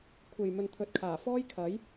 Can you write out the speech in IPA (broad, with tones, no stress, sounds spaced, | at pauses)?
kʷʰ e˨ j m ɵ˨ n t̪ʰ ɵ˨ t̚ kʰ aː˨˩ f ɔː˥ j kʰ ɐ˨˥ j